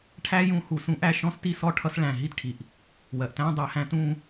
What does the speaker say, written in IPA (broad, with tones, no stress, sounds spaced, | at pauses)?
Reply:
ʈʰ æ˦˥ j ũ˦˥ h u˧˩ s ũ˦˥ ʔ æ˥˧ ʃ ɔ̃˦˥ s t i˥˧ s ɔ˥˧ ʈʰ ʌ˦˥ s ɭ æ̃˧˩ ɦ i˦˥ t ʈʰ i˩ ʔ | w ɜ˩ ʔ t æ̃˦˥ dˤ æ˧˩ h æ̃˥˧ t ũ˥˧